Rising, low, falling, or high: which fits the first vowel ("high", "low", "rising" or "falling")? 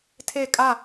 falling